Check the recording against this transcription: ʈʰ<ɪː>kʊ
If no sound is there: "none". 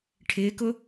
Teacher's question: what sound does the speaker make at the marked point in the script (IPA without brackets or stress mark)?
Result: ɪː